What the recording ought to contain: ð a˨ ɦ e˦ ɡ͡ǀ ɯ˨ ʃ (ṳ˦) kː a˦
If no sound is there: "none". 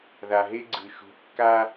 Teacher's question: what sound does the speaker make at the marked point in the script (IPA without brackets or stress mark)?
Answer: ṳ˨˦